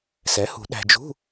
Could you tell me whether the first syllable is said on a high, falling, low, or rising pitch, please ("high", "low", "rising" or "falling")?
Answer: rising